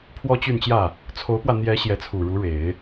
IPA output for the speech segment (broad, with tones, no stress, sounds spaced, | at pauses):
pʰ w ɔ˥ t͡ɕ y˥˧ n t͡ɕ j ä˥˩ | t͡sʰ o˧˥ ʊ̯ p w ä˧ n̪ j ɛ˧˥ ɕ j ɛ˧˥ t͡sʰ u˨˩ ɻ u˧˥ ɻ e˨˩˦ ɪ̯